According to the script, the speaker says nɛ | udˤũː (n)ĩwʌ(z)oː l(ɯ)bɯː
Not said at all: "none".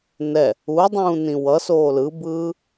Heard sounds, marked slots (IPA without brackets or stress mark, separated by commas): n, s, ɯ